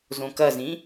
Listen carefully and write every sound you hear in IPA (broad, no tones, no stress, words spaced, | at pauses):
zõkɐzĩ